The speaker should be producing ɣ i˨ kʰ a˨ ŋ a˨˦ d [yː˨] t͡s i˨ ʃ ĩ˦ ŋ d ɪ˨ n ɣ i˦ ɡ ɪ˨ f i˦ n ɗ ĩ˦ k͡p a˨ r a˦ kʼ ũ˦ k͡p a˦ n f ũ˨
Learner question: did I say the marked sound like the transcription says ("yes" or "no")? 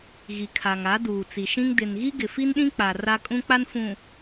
no